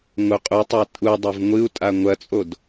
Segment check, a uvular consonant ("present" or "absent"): present